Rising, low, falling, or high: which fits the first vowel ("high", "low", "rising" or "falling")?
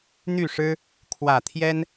falling